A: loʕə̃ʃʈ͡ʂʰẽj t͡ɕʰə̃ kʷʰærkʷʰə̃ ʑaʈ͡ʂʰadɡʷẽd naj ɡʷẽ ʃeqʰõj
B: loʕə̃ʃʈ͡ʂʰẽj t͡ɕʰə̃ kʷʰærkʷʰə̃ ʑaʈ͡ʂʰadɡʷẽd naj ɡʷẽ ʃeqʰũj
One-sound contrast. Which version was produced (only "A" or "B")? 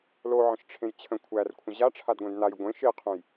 B